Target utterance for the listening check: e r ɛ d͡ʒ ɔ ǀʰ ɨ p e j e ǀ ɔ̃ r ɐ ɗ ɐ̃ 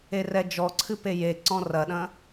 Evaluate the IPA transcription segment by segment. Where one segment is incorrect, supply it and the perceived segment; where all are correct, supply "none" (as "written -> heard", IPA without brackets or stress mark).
none